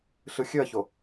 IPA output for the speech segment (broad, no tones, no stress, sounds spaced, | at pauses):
ɬ ɯ xʲ ø ɐ̯ ç o